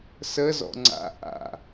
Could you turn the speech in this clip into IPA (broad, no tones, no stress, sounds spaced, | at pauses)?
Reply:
s ə z ɔ̰ ŋ͡ǀ a̰ ʔ a̰